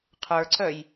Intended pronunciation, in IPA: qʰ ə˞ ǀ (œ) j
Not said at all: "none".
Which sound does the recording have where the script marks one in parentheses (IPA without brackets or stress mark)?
œ